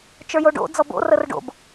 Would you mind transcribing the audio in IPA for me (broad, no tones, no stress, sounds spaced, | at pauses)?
t͡ʃ ə˞ j o ɖ o̰ d͡z ɔ b o̰ r ə r ɖ o̰ b